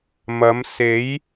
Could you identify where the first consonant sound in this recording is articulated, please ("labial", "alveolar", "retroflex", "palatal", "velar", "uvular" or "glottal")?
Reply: labial